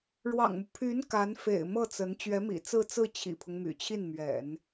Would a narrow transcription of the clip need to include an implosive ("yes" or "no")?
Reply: no